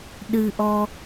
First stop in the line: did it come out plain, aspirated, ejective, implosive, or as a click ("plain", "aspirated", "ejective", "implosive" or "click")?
implosive